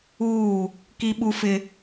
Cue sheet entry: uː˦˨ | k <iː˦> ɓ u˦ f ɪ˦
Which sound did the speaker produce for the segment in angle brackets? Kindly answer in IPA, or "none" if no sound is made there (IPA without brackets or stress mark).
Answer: i˦